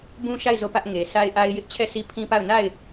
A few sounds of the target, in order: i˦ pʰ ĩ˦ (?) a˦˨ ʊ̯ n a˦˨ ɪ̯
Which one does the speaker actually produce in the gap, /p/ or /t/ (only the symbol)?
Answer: p